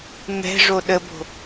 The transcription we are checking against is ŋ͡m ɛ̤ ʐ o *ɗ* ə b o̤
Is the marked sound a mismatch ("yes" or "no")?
no